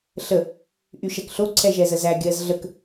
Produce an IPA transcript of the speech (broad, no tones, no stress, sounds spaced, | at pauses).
ɬ ə | ʔ y ʃ ɛ k ɬ o ǀʰ ɛ ʒ ɛ z ə z æ ɡʲ ɜ z ɮ ə k